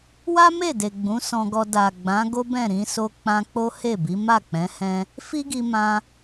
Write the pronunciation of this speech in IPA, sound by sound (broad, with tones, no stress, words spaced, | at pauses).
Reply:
wa˦me˦˨de˨ ɡ͡bũ˨˦sɔ̃˧ɡɔ˧ da˨ɡ͡bã˨˦ ɡo˦bɛ̃˦˨ ɾĩ˧so˧k͡pã˧ k͡po˦he˦˨bi˨˦ ma˦˨k͡pɛ̃˨˦ hɛ̃˦ | fi˦ɡi˧mã˧